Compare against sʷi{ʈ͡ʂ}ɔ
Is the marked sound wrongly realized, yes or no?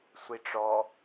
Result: no